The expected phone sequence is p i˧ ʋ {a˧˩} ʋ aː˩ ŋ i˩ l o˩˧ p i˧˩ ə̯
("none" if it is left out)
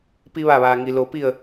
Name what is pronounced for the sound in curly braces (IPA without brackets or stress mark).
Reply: a˧˩